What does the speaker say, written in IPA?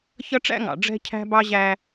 ç ʌ˦ ʈ͡ʂ æ̰˦ ŋ ɑ̰˨ ɖ͡ʐ ɛ̤˦ cʰ æ̤˦ b ɑ˦ ʑ æ˦

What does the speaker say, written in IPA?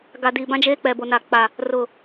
ɡ a˨ d i˨ b ã˦ d͡ʒ eː˦ k͡p ɛ˨ b o˨ n a˨ k͡p a˨ | r ʊ˨

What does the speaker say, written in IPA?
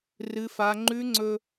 r ɨ˦ f a˦ ŋ͡ǃ ʉ˦ ŋ͡ǀ ɵ˦

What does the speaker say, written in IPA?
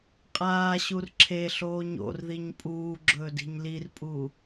qʼ aː ɕ u r ǁʰ e ɬ oː ɲ o̰ r ð i ɲ pʼ uː ɡ͡ǁ ɵː d i̤ ɲ l i r pʼ u

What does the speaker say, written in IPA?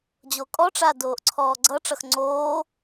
d͡ʑ o kʼ ɔ ʈ͡ʂ a d oː ʔ ǀʰ ɔː ɡ͡ǀ ʌ ʈ͡ʂ ʌ x ŋ͡ǀ oː

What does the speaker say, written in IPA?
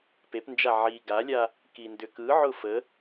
p e p n d͡ʒ a ʕ i ɡ a lʲ a | k i n d ʏ k ɯ ʕ ʊ f ə

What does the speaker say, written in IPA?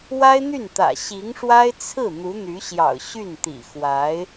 w a˥ ɪ̯ n̪ y˥˩ n t̪ ä̰˨˩ ɕ i˧˥ ŋ ʂ w a˥ ɪ̯ t͡sʰ ɹ̩˥˩ n̪ u˧˥ n̪ y˧˥ ɕ j ɑ̰˨˩ ʊ̯ ɕ y˥˩ n t̪ ḭ˨˩ x w a˧˥ ɪ̯

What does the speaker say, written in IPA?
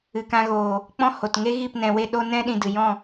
ɨ˨ k ã˧ ɣ oː˨ | k͡p ɔ̃˦ h o˨ t ŋ e˦ ɣ i˦˨ p n ɛ̃˧ w e˦ ɗ o˦ n ɛ̃˦ ɗ ĩ˧ d ɨ˨ j ɔ̃˦˨

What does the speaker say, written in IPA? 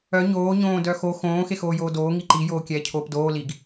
œ ɲ oː ɲ õː d œ x o x õː x e x oː j oː d oː ŋ i ǃ i j oː kʲ ɛː cʰ oː p d oː l i ɡ

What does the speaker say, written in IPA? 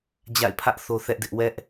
d͡ʑ a̰˦˨ ɪ̯ pʰ ä˦ ʔ θ o˦ θ ɛ˦ ʔ d ɪ˦ ʔ w ɛ˦ ʔ

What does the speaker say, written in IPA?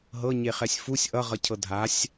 ɦ ɤ ɲ e χ ɛ sʲ f u sʲ ʔ ʌ ʁ ʌ cʰ ɤ dʱ a sʲ

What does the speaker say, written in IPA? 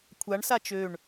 kʷʰ a ɳ s a t͡ʃ ø ɳ

